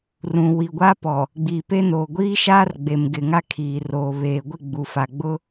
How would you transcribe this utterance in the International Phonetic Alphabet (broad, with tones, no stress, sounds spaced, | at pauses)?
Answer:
r ũ˨ w i˨ ɡʷ a˦ p ɔ˨ | ɡ͡b iː˨ p e˦ n oː˨ ɡʷ iː˦ ʃ aː˦ r ɡ͡b e˨ m ɡ ɪ˨ ŋ a˦ kʰ iː˨ r oː˨ β eː˨ ɡʷ ɪ˦˨ ɡ͡b u˨ f a˨ ɡ͡b ʊ˦